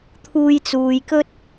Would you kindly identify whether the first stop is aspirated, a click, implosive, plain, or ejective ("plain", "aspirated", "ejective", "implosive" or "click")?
aspirated